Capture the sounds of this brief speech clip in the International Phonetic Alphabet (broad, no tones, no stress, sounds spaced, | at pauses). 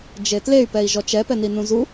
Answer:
d͡ʒ e t l e y̯ p ɛ i̯ ʒ ɔ t͡ʃ ɛ p ɛ n i n ũ z u